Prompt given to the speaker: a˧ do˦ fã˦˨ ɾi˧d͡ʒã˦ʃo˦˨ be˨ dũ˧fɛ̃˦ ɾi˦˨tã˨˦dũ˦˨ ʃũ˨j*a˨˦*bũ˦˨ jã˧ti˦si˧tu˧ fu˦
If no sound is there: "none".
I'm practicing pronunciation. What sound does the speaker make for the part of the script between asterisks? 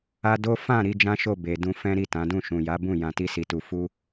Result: a˨˦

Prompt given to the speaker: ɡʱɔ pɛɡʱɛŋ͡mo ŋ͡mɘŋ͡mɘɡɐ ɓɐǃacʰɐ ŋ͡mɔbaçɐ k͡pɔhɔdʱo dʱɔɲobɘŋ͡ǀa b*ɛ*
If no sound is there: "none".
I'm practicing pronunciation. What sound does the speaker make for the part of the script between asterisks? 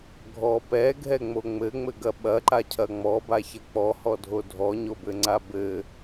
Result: ɘ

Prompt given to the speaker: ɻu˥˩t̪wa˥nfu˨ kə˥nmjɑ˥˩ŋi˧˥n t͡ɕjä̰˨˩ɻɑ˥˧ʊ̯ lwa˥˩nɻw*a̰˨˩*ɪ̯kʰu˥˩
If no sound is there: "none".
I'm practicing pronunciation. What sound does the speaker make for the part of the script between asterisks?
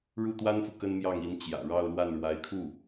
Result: a˧˥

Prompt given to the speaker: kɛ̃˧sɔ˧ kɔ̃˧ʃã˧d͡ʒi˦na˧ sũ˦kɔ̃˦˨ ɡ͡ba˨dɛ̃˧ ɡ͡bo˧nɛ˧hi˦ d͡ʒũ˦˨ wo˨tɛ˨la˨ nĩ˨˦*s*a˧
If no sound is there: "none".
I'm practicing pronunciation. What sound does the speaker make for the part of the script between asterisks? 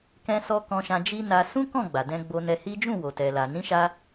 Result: ʃ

